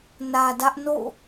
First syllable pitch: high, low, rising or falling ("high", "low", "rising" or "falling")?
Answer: low